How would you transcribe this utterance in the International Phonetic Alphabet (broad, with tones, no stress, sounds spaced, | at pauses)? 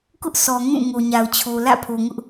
k ʊ˦ ʔ sʰ ɔ˨ ŋ ũ˦˨ ŋ o˨ ɲ a˨ ʊ̯ t͡ɕʰ o˨ l ä̰˦˨ pʰ o˨ ŋ ʊ˦ ʔ